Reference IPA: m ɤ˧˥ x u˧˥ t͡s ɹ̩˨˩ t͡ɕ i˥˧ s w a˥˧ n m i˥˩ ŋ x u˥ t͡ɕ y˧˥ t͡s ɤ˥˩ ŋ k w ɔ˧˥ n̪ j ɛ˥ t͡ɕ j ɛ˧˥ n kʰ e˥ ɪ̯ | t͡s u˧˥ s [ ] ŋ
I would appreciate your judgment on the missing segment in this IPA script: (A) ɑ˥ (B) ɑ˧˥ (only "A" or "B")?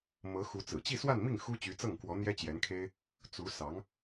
B